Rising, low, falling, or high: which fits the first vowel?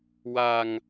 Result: low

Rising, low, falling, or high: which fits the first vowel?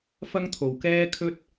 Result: high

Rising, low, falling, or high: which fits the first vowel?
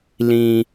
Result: low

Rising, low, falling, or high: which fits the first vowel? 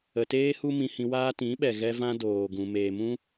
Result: low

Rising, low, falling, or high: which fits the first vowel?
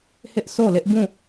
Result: high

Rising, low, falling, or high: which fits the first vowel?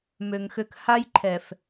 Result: low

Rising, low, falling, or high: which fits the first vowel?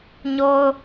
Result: high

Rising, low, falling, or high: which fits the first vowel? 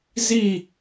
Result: falling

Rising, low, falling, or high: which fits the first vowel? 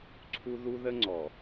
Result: high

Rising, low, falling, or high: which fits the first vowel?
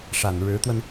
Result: low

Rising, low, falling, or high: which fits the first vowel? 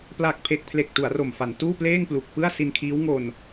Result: low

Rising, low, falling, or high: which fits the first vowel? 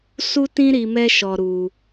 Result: high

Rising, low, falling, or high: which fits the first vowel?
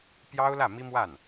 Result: high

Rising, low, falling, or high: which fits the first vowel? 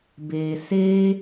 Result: low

